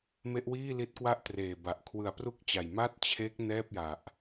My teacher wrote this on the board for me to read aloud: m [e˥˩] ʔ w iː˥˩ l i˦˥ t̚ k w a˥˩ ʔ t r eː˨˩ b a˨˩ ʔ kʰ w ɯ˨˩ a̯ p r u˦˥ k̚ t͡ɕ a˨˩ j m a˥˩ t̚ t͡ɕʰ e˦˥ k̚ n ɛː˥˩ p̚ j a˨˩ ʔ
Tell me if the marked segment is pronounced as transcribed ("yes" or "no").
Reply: no